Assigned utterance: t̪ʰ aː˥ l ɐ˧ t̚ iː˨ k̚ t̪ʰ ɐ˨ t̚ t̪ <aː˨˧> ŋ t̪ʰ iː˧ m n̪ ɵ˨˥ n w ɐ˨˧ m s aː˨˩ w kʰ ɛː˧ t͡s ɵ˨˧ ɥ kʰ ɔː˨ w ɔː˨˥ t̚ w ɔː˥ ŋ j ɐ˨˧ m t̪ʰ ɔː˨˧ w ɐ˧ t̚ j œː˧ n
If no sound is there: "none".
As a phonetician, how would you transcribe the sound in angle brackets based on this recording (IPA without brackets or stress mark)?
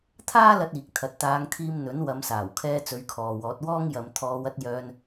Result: aː˨˧